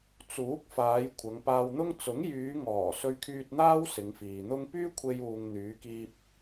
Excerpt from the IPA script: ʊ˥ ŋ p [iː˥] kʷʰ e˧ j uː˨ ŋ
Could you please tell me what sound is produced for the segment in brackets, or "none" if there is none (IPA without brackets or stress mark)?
yː˥